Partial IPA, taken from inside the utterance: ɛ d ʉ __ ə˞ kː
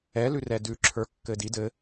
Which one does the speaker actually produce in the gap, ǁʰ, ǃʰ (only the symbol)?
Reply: ǁʰ